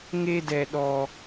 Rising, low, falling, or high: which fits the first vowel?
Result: high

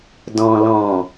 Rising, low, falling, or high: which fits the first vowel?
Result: low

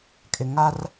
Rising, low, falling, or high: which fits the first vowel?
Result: low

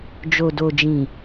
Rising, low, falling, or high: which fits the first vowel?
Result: low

